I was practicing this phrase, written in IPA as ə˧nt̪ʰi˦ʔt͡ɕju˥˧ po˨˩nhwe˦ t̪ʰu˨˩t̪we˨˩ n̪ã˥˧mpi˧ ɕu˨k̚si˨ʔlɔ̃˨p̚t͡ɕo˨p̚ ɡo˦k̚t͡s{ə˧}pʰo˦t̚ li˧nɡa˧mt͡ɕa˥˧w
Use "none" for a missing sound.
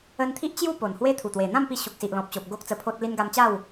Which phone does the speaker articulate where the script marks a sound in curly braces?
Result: ə˧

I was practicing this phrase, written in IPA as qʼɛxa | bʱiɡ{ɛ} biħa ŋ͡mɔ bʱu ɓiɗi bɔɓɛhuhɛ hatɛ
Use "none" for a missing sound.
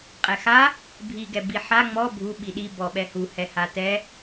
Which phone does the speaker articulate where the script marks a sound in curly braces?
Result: ɛ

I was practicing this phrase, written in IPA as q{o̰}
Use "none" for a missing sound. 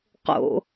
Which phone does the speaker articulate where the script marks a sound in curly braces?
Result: o̰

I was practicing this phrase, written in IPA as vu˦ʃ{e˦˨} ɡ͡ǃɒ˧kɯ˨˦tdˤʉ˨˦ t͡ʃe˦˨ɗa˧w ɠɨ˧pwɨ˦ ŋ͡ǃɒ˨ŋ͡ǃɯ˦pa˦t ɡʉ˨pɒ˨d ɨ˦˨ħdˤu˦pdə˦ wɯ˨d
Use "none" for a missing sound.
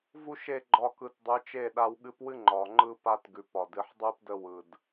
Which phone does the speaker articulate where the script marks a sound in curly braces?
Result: e˦˨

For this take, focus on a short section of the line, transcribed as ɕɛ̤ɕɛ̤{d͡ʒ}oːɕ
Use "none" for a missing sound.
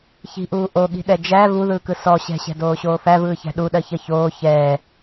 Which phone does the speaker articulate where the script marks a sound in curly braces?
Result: d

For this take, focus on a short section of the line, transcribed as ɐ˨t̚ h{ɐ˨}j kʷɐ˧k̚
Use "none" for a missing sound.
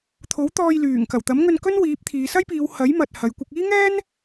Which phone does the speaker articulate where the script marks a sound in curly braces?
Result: ɐ˨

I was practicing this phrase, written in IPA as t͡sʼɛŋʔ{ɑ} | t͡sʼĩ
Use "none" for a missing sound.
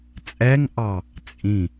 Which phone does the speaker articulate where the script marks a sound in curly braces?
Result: ɑ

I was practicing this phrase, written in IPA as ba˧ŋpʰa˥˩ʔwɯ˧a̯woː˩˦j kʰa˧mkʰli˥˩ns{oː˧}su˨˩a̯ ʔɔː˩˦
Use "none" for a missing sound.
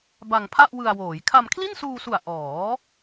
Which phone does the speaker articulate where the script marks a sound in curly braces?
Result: uː˧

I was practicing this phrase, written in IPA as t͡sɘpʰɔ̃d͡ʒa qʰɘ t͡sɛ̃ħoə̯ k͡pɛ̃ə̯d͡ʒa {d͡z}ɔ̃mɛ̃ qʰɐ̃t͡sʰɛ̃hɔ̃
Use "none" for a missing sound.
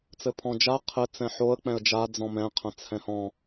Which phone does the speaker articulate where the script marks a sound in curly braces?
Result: d͡z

